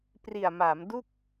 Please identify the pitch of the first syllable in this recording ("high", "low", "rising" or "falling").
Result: low